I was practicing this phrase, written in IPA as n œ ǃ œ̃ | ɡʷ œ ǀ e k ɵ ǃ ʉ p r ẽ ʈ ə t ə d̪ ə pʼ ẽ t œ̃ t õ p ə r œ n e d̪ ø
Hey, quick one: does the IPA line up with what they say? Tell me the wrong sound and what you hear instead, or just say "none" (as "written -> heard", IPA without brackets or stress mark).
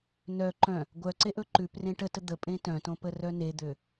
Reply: k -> ʔ